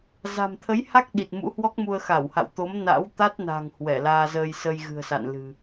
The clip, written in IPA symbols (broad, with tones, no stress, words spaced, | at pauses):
za̤˨˩mt̪ʰə˨˦jha˦˥k̚ ɗi˨˩t̚mṵ˧˥hwɔ˦˥k̚mu˧ə̯ xa˧˩wha̰˧˨wt̪o˨˦m na̰˧˥wt̪a˦˥t̚na̤˨˩ŋ hwɛ˧˩laː˧zəː˧j sə˧jɣɨ̤˨˩ə̯sa̰˧˨n lɨ̤˨˩